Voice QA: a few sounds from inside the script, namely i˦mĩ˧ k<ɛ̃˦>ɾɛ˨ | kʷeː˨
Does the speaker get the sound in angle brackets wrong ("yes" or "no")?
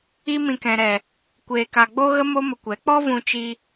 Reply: yes